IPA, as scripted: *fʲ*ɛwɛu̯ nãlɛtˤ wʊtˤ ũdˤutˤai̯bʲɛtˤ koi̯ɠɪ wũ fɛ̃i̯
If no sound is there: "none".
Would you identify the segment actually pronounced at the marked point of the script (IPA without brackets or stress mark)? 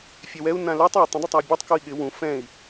fʲ